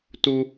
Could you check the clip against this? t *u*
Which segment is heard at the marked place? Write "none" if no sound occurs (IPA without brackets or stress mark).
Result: u